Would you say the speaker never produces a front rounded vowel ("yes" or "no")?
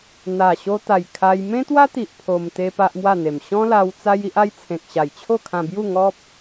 yes